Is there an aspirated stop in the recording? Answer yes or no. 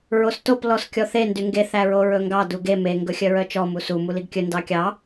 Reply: no